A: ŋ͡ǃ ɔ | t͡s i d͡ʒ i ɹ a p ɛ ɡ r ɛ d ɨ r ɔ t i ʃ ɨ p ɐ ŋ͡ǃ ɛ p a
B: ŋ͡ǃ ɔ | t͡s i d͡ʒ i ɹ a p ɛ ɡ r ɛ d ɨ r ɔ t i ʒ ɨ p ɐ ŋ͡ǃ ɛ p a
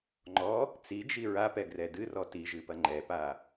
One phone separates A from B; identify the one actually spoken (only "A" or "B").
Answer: B